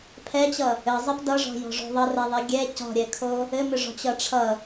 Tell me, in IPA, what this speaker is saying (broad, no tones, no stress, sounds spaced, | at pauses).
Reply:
pʰ ɛ t͡ɕ ʌ | ɘ zˤ ɛ p d ʌ ʐ ɔ̤ j ɔ̤ ʐ o̤ ðˤ ʌ r ɛ ðˤ i ɡʲ ɛ c ɔ̤ ɾʲ ɛ kʰ o | ɘ m ʏ ʐ ɔ̤ t͡ɕ ʌ ʈ͡ʂʰ ʌ